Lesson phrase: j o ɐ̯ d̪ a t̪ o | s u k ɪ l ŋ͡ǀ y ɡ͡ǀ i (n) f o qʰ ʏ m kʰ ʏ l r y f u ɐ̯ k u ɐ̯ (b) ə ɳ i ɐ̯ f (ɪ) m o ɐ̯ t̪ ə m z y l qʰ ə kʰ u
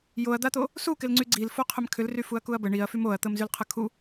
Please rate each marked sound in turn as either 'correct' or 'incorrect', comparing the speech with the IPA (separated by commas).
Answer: incorrect, correct, incorrect